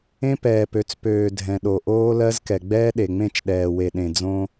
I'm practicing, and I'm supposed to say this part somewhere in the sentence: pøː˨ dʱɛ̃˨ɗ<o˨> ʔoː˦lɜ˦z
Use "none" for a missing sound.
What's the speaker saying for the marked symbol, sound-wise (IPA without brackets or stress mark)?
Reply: o˨